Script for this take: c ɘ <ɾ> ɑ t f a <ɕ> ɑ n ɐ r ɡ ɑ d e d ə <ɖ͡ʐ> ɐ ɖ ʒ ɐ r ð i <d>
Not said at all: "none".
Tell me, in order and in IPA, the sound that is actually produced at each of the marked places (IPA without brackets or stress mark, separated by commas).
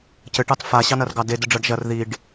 ʈ, ɕ, ɖ͡ʐ, ɖ